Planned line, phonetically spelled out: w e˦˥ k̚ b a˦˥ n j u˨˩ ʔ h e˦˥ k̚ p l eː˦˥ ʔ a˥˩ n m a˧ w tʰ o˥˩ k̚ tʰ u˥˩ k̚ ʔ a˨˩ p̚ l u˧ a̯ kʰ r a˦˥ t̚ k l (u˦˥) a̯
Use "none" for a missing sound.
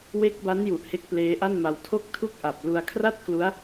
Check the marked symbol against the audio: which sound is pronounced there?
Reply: u˦˥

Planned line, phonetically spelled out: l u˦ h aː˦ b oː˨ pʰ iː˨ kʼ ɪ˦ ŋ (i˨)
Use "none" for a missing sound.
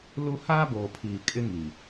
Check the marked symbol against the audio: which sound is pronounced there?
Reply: i˨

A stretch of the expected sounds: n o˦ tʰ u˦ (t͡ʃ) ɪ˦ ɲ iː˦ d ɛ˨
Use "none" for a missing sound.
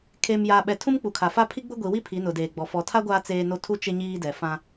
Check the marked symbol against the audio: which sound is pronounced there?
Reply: t͡ʃ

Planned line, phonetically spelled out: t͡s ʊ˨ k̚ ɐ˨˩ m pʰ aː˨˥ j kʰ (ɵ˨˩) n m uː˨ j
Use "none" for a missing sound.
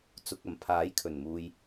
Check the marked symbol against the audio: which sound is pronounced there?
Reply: ɵ˨˩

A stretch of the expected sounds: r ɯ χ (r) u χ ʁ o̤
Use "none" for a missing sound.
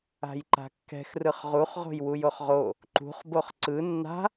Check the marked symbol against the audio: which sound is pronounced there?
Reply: ʁ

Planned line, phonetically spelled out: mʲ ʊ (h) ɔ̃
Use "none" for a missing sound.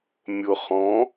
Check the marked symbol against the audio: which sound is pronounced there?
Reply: χ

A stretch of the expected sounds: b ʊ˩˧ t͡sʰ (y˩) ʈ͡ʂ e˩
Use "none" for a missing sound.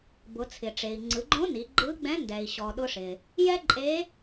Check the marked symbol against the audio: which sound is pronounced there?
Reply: ɪ˩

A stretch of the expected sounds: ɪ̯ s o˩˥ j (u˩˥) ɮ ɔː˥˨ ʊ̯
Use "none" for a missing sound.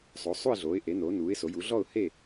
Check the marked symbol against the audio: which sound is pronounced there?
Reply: u˩˥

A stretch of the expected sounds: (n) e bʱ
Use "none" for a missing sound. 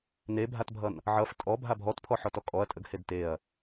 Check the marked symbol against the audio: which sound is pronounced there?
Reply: n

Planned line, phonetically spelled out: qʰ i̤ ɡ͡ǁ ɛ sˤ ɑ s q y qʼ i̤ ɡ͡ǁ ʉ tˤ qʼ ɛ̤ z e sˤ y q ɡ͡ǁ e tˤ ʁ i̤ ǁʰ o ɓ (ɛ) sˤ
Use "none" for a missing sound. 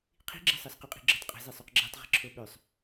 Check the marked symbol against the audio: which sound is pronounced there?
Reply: ø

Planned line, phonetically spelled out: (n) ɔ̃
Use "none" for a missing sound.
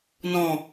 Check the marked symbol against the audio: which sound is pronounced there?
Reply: n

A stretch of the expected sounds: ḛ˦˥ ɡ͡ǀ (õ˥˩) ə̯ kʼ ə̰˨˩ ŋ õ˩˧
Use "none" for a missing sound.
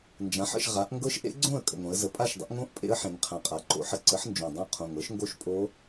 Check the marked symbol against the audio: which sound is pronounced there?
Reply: õ˥˩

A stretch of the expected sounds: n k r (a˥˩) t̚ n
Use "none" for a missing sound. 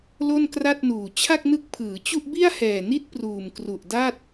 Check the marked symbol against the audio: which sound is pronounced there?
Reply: a˥˩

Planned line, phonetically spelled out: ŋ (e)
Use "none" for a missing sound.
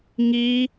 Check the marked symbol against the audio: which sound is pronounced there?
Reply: i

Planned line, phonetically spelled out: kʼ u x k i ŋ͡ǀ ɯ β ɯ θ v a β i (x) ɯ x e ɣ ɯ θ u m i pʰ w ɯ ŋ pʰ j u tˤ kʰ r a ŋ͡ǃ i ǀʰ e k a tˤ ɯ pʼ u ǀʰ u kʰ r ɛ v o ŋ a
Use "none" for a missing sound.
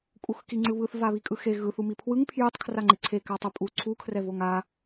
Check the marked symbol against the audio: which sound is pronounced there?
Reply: kʼ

